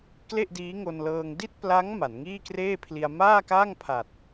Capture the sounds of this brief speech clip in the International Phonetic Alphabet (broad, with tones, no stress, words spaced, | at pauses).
kle˥˩ʔdiː˦˥ŋo˧nlɤː˧ŋ di˥˩t̚pla˦˥ŋ ma˩˦nŋiː˥˩kreː˥˩pʰli˧a̯ maː˥˩ka˥˩ŋpʰa˨˩t̚